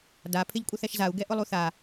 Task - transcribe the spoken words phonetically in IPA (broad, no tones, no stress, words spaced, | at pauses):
da pʰɪʎkʷʼɪθɛʃzau̯ ɡɛʔʊlˠuθa